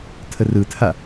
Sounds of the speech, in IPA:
tʰ ə r ɯ tʰ a

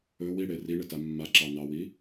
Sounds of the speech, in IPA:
ɵ w i ɽ e r i ɳ ɪ t a mː a ǁ ɑ n ɑ w i

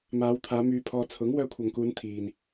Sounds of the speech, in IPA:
m aː˨˧ w t̪ʰ aː˨˧ m yː˧ pʰ ɔː˧ t͡sʰ ʊ˨˥ ŋ w œː˧ kʷʰ ɐ˨ ŋ k uː˨˧ n t̪ʰ iː˨ n

